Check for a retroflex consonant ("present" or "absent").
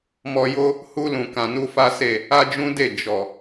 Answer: absent